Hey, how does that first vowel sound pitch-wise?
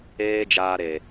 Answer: high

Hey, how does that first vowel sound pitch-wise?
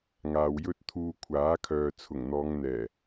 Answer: low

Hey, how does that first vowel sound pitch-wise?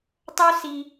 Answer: high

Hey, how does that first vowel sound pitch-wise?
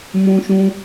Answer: high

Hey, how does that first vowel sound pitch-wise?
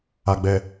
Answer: low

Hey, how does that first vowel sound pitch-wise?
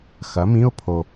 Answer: rising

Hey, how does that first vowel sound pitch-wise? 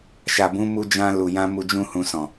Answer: low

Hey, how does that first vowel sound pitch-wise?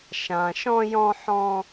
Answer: low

